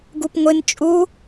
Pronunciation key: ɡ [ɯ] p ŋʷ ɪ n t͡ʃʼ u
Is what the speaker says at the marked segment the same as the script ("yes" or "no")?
no